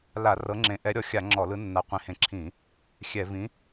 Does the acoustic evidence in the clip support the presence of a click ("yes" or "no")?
yes